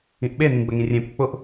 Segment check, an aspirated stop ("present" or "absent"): absent